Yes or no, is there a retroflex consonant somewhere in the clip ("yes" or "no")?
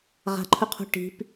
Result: yes